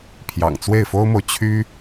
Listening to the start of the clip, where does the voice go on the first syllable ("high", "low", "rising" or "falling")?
low